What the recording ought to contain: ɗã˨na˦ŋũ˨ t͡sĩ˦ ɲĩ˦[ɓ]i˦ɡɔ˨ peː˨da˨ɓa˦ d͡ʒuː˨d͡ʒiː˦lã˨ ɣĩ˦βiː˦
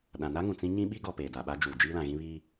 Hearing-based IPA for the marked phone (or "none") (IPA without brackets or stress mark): ɓ